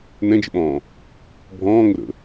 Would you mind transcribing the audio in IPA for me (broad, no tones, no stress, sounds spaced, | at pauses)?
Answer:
n ɛ̃ d͡ʒ ə̰ ɓ ɔ̃ː | bʱ ɔ̃ː ŋ ʊ ɾ ə̰